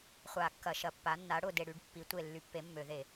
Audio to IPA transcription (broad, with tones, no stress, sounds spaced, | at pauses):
χʷ a˧˩˧ kː ɐ˧˩˧ ʃ ɐ˧˩˧ pː a˨˥ nː a˨˥ ɽ ʊ˦˨ d e˦˨ ɽ y˨˥ ɖ pː i˨˥ tʷ e˦˨ lː y˨˥ pː e˨˥ mː ø˧˩˧ ð e˧˩˧